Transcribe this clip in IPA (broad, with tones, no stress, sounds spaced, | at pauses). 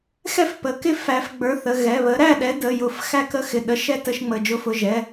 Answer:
x ɛ˥˨ f p ə˩˧˩ k ɪ˥˨ f æ˨˥ f ɡ͡b ə˞˨˥ θ ə˩˧˩ ɣ ɛ˩˧˩ β ə˨˥ ɾ æ˥˨ ɗ ɛ˨˥ d ə˩˧˩ j ʊ˨˥ f x æ˥˨ k ə˥˨ x ɪ˩˧˩ ɗ ə˨˥ ʃ ɛ˥˨ t ə˥˨ ʃ ŋ͡m ə˩˧˩ d͡ʒ ʊ˨˥ f ʊ˩˧˩ ʒ ɛ˩˧˩